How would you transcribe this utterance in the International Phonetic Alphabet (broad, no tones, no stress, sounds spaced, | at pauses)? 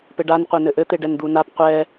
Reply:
p ɘ ɖ a n qʷ e n ɘ ʔ ɘ t̪ e ɖ ɛ n d̪ u n a p qʷ ɛ